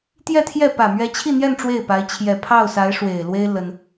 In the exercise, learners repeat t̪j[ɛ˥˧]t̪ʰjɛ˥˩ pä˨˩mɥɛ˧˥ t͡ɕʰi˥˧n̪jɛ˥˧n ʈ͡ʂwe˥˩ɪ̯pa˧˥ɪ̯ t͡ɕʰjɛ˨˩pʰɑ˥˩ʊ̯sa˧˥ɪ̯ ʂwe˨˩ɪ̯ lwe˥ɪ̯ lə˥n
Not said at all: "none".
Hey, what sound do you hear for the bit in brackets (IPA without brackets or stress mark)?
ɛ˥˧